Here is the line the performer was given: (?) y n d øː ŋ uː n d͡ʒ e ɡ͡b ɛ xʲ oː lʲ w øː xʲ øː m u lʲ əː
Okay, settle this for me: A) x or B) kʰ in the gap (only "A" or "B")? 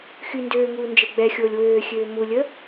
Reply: A